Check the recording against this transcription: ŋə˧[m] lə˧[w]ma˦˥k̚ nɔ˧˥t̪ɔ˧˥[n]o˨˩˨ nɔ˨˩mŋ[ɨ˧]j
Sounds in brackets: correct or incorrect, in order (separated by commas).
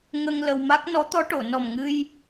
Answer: incorrect, correct, incorrect, correct